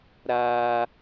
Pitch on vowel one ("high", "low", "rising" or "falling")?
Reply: high